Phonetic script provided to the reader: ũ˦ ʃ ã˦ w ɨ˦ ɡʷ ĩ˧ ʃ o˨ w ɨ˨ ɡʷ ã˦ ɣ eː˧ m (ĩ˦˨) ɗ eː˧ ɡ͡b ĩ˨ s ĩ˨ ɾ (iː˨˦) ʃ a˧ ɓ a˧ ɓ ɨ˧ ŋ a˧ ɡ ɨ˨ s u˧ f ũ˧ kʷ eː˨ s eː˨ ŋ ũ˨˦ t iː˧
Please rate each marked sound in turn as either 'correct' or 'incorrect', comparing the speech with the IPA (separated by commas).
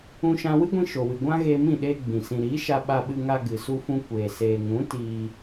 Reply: correct, correct